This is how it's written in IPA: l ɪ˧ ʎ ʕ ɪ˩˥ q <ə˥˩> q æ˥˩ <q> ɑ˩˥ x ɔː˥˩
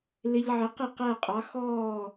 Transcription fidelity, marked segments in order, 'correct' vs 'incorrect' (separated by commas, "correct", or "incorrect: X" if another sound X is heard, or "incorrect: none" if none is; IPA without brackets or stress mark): incorrect: ɪ˥˩, incorrect: qʼ